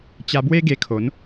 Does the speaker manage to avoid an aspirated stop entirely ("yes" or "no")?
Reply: no